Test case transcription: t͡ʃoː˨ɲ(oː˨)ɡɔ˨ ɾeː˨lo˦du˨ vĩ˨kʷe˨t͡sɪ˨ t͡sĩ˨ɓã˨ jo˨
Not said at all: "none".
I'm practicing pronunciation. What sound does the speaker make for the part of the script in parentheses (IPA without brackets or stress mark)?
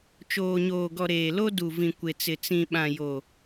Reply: oː˨